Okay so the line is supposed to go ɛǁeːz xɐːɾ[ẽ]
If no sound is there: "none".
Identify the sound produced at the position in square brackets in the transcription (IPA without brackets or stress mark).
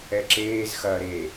e